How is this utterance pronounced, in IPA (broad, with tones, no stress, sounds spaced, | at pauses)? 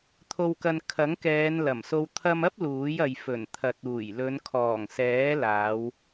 t̪ʰ o˧ w k ɐ˧ n kʰ ɐ˨˥ ŋ k ɛː˨˧ n l ɐ˨˩ m s o˧ w t̪ʰ ɐ˧ m ɐ˥ p̚ l uː˨˥ j ɐ˨ j f ɵ˨˩ n t̪ʰ ɐ˨ t̚ uː˨˩ j l ɵ˨˧ n kʰ ɔː˨˩ ŋ s ɛː˨˥ l aː˨˧ w